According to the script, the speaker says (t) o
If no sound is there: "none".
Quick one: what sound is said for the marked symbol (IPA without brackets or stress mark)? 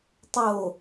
tˤ